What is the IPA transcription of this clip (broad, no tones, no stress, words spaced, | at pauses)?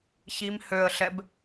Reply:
çim høə̯ɬɛb